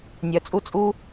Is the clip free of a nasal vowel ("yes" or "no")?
yes